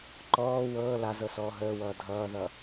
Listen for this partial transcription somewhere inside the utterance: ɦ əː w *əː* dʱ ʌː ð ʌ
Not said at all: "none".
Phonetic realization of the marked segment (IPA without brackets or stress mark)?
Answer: ʌː